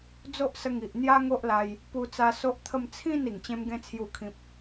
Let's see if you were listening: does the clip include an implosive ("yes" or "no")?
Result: no